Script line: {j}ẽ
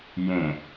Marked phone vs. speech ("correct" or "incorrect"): correct